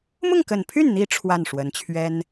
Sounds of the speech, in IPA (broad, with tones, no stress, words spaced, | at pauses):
mʊ˥˩ŋkə˨˩npʰy˥˩nn̪i˧˥ ʈ͡ʂʰwa˥˩nʂwə˧˥nt͡ɕʰɥɛ˥n